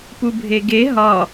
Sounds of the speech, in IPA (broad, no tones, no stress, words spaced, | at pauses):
pubʱeɡe ɦɒ